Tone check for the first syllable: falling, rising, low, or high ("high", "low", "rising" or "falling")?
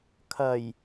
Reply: low